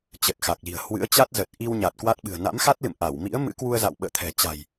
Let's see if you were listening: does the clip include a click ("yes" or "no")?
no